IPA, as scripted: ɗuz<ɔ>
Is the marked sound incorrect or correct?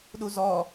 correct